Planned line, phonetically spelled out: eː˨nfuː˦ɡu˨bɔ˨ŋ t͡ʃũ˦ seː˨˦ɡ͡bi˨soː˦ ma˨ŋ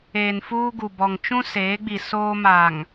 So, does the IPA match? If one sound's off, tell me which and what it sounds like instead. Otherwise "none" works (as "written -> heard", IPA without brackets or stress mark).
none